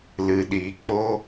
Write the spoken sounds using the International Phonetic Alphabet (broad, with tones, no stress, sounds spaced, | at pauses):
l ɨ˨ ɗ iː˨ k͡p o˦